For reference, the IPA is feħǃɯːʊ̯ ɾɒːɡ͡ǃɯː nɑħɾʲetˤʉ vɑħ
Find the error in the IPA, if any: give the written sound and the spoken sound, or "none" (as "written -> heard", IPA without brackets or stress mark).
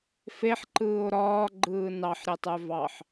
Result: none